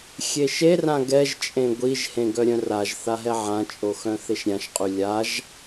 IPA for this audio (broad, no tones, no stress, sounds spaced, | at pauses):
xʲ e ʃ e r ã ɡ ɛ ʒ t͡ʃʼ ẽ ɡʷ i ʒ h ẽ ɡ œ ɾʲ œ̃ r a ʒ θ a ɦ ɛ ʕ ã t͡ʃʼ o x œ̃ θ e ʃ ɾʲ ã ʃ qʼ y lʲ a ʒ